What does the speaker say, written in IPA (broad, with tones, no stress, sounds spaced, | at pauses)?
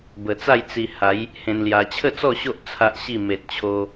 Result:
b ə˨˩ t͡s a˥˧ j t͡s i˧ h a˨˦ j | h ẽ˧ n l j a˧ t͡ɕʰ ə˥˧ t͡s ɔ˥˧ ɕ o˦ ʔ t͡sʰ a˦ ʔ ɕ i˥˧ m e˨ t̚ t͡ɕʰ o˧